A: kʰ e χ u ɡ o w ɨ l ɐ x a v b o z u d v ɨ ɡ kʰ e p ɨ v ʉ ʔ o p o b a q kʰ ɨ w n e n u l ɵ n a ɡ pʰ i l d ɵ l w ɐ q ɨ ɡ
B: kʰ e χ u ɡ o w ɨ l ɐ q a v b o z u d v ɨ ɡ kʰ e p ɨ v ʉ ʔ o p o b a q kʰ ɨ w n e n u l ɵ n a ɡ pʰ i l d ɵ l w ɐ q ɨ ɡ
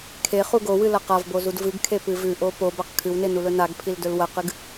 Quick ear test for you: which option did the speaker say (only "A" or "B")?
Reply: B